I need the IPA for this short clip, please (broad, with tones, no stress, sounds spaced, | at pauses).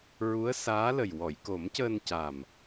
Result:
ɹ u˧˥ ə̯ s aː˧˥ l ə˨˩ j w ɔ˨˩˨ j k o˨˩˦ m c əː˧ n c a˨˩ m